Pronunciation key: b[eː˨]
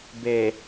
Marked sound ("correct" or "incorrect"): correct